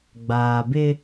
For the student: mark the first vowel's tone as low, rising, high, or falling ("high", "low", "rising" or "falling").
low